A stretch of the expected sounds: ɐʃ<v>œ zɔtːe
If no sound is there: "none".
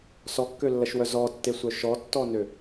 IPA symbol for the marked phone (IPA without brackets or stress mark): w